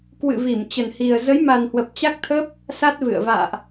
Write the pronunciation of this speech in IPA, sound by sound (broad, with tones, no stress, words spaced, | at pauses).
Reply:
kwɨ̰˧˨ vi˧˩mt͡ɕə˨˩nhi˨˩ə̯ zə˨˦jma˨˩n hwə˨˩p̚t͡ɕa˦˥k̚t̪ʰə˦˥p̚ | sa˦˥t̚vɨ̰˧˨ə̯ va̰ː˧˨ʔ